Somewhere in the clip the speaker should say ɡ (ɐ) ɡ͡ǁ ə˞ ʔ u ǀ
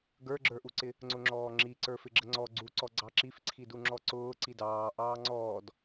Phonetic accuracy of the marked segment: incorrect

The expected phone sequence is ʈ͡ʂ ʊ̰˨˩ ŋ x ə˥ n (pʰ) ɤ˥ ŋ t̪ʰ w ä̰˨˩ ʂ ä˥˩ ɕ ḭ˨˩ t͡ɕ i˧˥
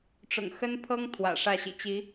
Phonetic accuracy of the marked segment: correct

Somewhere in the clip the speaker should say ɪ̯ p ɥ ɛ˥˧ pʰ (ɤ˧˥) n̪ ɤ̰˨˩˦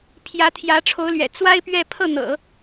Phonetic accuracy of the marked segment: incorrect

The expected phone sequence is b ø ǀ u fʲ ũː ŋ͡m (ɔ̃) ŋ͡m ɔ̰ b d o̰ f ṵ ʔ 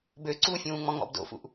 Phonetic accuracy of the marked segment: correct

